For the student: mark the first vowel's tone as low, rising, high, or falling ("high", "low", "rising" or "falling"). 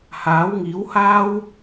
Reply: rising